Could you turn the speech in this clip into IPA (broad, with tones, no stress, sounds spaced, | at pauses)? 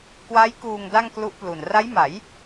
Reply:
k w a˦˥ j k uː˧ ŋ d a˥˩ ŋ k l u˦˥ ʔ p l u˨˩ n r a˦˥ j m a˩˦ j